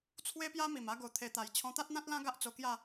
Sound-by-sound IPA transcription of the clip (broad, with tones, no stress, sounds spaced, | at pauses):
t͡sʰ w e˦ p j a˦ m i˨˩ m a˧ ɡ o˨˩ t̪ʰ e˨˩ t̪ a˨˩ j t͡ɕʰ ɔ̃˧ t̪ a˦ t̚ n̪ ã˦ t̚ l ã˦ ɡ a˦ ʔ t͡s o˧ k j a˥˧